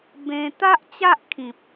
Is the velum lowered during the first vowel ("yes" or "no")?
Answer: yes